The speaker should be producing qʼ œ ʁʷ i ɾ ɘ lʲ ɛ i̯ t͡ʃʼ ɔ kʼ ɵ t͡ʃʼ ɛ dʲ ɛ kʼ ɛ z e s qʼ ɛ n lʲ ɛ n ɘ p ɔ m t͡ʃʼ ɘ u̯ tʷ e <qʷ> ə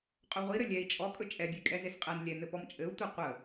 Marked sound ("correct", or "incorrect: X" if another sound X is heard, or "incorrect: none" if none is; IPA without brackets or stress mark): correct